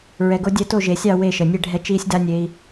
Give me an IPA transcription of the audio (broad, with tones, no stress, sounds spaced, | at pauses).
ɹ ɛ˧ ɡ o˦ dʲ ɛ˦ t o˦˨ ʒ e˨ sʲ ɑ˦˨ w e˦˨ ʃ ə˨ nʲ e˦ ɖʱ ɛ˦ t͡ʃ iː˦ sʲ d a˦ nʲ e˧ i̯